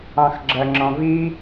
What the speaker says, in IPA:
ɑ̃xɡ͡ǁɜŋ͡ǁɔ̃vi

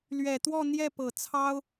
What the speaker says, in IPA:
lɥɛ˨˩t̪wɔ˥˧n̪jɛ˥˩ pɤ˨˩t͡sʰɑ˥ʊ̯

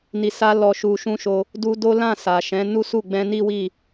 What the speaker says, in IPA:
ni˨sa˧ lɔ˨ʃu˨ʃũ˧ ʃo˧ | du˧do˦ lã˦˨ sa˨ʃɛ̃˨˦ nu˦su˦˨ ɡ͡bɛ̃˧ni˦wi˦˨

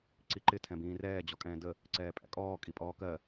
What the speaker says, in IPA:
ǀiǃɪ tʰɛ̃bĩːrɛː d͡ʑɔkʼɛ̃ːdə | ǀɛːpʼæ̰kʼɔː kʼipʼɔːkɜ

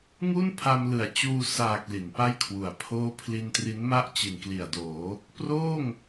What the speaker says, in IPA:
ŋu˥˩npʰa˧mlɯ˨˩a̯t͡ɕuː˧ saː˨˩k̚ li˩˦npa˥˩jkʰwu˨˩a̯ pʰoː˦˥ pʰli˧ntri˦˥nma˥˩ʔ t͡ɕi˨˩nkli˨˩a̯doː˩˦ | proː˥˩ŋ

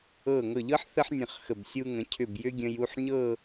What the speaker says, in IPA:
ɤː˧˩ŋɤ˧˩ʎɤ˥ħ θə˥ħ nʲə̃˧˩χxə˧˩b sʲu˧ŋə̃˩˧cʰʏ˧˩b jʏ˥ɡʲə̃˧j u˥˧ħɲɤː˥˧

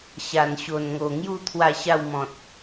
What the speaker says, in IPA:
ɕa˨˩nɕo˨˩nŋo˨˩ŋju˥˧ t̪ʰwa˥˧ɕa˥˧w mɔ̃˨t̚

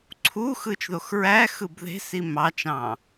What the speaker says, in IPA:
ǀʰu xɯt͡ʃðoxɹæ xɯbðe̤si mɑt͡ʃɑ̃

